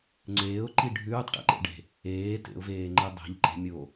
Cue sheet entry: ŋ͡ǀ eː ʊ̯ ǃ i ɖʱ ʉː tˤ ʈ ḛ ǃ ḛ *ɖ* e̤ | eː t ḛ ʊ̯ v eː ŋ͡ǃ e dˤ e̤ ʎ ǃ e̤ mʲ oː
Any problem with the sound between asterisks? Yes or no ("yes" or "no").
no